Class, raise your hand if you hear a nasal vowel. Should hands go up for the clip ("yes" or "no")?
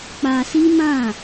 yes